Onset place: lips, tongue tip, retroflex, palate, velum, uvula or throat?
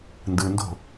tongue tip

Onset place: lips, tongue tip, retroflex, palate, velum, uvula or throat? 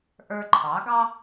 throat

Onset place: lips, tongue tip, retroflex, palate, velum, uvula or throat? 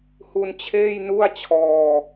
throat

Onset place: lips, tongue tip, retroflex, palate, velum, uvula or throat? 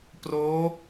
lips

